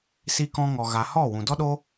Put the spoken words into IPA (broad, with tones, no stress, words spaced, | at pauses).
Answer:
si˦kɔ̃˦ ŋɔ˧ ɣa˧ hɔ˦˨wũ˨dɔ˦ɗo˦